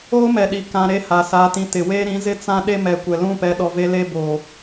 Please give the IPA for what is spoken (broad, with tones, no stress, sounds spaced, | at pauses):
oː˦ m ɛ˨ ɗ i˨ k ã˨ ɾ e˦ h a˨ s aː˨ t ĩ˨ t ɪ˨ w eː˦ ɾ ĩ˨˦ z ɪ˦ t͡s ã˦ ɗ e˦ m ɛ˨ kʷ ɛ˨ l ũ˦˨ p ɛ˨ ɗ ɔ˨ v e˦ l e˦ b oː˨